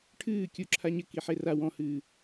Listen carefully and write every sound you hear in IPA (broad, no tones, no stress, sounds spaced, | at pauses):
ʈʰ ɨː kʲ u ǁʰ a ɲ ɘ k i ħ e r a w ɔ̃ h ɨː